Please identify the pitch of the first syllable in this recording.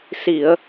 low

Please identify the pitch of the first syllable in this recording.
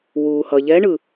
low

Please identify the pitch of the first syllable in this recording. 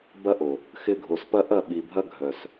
high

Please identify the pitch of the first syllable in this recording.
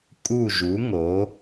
falling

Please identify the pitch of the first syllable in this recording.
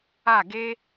falling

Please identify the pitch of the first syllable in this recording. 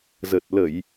low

